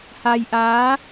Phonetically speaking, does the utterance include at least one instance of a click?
no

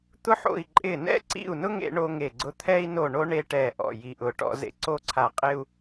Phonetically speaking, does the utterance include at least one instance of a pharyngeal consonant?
yes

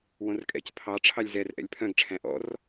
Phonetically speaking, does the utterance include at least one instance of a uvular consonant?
no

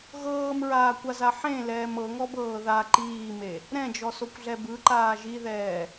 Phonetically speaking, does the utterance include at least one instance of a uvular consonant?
no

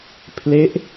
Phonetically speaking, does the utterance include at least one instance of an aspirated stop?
yes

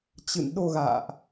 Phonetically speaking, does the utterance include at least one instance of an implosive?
yes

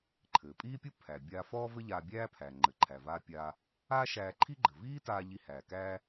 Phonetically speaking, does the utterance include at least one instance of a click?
yes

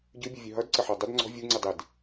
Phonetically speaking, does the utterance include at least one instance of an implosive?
no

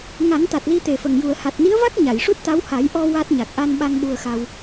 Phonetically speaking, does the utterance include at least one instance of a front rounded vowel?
no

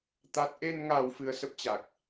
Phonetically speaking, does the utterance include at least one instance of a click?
no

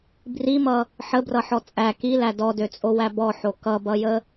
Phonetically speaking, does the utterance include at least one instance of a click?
no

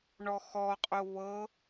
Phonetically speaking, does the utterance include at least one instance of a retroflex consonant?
yes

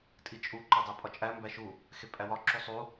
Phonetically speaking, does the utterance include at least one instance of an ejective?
yes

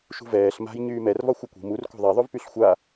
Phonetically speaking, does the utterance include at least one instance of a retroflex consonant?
no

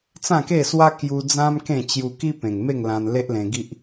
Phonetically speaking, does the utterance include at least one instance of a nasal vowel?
yes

